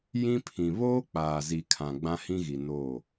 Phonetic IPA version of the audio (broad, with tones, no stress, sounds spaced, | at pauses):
j ĩ˦ pʰ ĩ˨ β oː˦ k͡p aː˨ z i˨ kʰ ã˨ ɡ͡b ã˦ h ĩ˦ ɣ i˨ n oː˦˨